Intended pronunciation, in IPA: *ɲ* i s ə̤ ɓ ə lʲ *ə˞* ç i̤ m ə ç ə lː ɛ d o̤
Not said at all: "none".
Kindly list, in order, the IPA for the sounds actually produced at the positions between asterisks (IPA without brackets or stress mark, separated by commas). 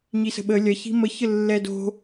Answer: ɲ, ɐ